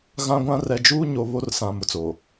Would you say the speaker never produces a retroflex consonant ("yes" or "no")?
yes